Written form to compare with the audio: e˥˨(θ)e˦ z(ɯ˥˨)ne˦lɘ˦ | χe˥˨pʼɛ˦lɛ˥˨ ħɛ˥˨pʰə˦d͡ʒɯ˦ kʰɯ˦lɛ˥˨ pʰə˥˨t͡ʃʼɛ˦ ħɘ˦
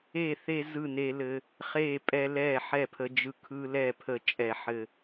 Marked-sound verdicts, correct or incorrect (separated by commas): correct, correct